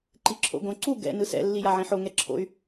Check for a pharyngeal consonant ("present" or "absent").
present